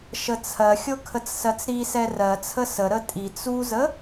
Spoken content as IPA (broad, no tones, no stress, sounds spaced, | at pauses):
ʃ ə t͡sʰ ɜ xʲ ɤ kʰ ə t͡s s ɜ t͡s ɾ i s ɛ r ɜ t͡sʰ ə s ə ɾ ə tʼ i t͡s u z ə